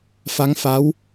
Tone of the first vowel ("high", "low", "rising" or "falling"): rising